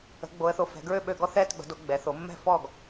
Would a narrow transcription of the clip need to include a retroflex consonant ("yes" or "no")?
no